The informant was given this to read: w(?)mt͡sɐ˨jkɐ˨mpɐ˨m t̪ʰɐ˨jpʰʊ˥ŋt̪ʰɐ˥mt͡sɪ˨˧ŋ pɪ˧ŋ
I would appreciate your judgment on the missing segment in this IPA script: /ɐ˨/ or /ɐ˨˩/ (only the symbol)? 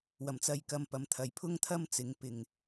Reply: ɐ˨˩